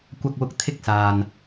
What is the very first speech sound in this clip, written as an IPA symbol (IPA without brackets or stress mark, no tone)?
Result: kʷ